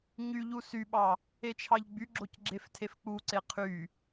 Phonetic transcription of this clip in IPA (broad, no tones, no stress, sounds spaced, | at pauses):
ɲ y ʎ u s y ɓ ɑ | e t͡ʃʰ ɑ ʎ ɡ͡b y ɡ͡ǁ o c ɡ͡ǁ e f tʰ e f k͡p u ǀ e qʰ y